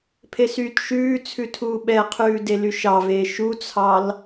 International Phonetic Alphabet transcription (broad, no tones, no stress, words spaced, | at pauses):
pʰesyːtʃʉːt͡sʰʉ tʰuːɓɛqʰʉː delyʃɑveː ʃut͡sʰɑl